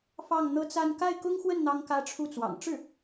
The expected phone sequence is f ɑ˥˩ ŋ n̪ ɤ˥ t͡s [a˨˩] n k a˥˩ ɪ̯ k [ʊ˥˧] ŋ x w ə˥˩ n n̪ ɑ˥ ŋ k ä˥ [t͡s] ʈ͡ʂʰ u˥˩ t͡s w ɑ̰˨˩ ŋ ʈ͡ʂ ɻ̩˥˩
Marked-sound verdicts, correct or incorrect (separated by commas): incorrect, incorrect, incorrect